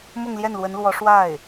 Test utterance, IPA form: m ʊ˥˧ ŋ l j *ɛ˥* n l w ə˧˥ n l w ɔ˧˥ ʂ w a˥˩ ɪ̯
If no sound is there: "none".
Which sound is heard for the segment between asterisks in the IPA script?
ɛ˥˩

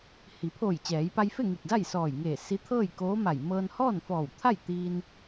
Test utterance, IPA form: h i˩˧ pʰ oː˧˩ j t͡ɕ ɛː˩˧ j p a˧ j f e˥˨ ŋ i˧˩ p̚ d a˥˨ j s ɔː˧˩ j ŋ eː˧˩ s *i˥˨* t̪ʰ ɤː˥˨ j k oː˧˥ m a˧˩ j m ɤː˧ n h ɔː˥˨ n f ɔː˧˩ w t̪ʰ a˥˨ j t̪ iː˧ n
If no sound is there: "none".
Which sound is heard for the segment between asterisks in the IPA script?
i˧˥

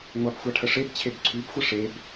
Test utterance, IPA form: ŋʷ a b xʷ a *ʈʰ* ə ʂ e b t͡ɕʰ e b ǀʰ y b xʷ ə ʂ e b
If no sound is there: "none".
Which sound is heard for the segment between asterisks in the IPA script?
ʈʰ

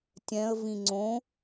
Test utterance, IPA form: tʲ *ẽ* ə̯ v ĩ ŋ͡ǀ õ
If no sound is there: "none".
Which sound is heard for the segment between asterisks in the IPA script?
ɛ̃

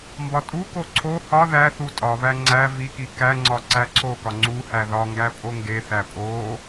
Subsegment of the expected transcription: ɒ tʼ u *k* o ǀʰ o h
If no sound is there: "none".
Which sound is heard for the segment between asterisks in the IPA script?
k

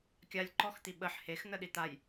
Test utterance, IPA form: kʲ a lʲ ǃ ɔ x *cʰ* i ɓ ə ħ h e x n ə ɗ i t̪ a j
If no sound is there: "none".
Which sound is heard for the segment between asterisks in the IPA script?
t̪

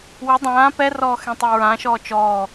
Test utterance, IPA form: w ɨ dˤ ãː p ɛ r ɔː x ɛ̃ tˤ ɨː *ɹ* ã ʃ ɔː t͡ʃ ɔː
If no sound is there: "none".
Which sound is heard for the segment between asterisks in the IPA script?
ɹ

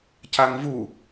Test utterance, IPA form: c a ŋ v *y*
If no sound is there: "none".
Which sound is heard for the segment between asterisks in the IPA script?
u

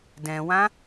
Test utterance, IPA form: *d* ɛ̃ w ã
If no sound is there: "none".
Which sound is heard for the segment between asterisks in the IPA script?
d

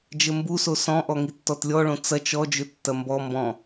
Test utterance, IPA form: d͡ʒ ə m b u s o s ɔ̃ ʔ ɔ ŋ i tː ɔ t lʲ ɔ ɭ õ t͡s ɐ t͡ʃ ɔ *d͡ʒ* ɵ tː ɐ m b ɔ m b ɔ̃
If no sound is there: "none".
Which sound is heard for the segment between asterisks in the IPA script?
d͡ʒ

